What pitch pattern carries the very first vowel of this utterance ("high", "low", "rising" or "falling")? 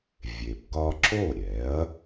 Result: low